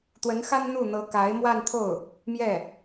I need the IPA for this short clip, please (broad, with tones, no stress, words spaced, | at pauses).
t̪wə˧˥nxa˥n n̪u˥˩n̪ɤ˧˥ ka˧˥ɪ̯mwa˥˧nt̪ʰo˥˩ʊ̯ | mjɛ˥˩